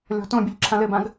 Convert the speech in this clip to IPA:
lʲ ɔ̤ t õ bʲ ɘ ʎ ǁʰ ã l ɘ b ã ɡ

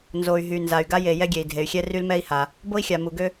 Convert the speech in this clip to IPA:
n z o˩ y̯ ɦ y˩ n z a˩ y̯ ɡ a˥ j e˩ j ɛ˥ ɡʲ e˩ i̯ dʱ e˩ y̯ xʲ ɛ˥ r y˥ l m ɛ˥ i̯ h a˩ | b o˥ i̯ xʲ a˩ m u˩ ɡ ø˥

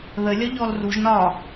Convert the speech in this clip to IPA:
ð ə lʲ ɒ ʎ ɔ l r u ʒ n ɒ

